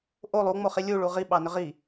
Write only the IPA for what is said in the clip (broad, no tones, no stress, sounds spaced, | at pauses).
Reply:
ʔ o lˠ u ŋ͡m o χ i lʲ u ɭ u ʁ i ɓ ɑ n ʏ ʁ i